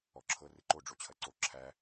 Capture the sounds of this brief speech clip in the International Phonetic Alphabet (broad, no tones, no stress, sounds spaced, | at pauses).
ɔ ǁʰ ɤ r ɨ ǃ o ɖ͡ʐ o t͡ɕʰ ɐ ǀ o ǁʰ æ